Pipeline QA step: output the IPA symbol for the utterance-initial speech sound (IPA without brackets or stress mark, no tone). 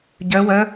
ɟ